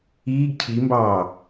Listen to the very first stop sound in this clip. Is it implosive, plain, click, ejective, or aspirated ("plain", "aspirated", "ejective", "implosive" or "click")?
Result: plain